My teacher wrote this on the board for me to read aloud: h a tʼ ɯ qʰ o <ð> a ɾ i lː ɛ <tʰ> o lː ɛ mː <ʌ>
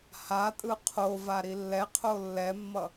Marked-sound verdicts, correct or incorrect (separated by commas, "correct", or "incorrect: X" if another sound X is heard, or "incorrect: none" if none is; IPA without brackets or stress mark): incorrect: v, incorrect: qʰ, correct